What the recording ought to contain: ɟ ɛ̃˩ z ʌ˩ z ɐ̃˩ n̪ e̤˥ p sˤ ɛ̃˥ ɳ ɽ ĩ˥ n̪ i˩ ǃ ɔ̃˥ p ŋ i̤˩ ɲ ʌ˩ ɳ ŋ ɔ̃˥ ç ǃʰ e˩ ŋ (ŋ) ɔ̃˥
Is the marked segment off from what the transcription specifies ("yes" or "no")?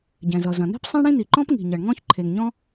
yes